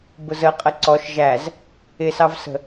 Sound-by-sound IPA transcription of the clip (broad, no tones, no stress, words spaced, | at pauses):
bʊzəqʼə ǀɔʃ ʒæz | ɪsɑvsə̤